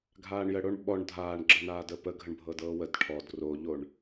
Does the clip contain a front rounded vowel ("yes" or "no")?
no